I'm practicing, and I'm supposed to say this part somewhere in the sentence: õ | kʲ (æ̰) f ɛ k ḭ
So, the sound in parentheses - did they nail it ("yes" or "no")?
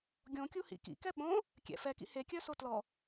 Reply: no